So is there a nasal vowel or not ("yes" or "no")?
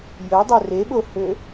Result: no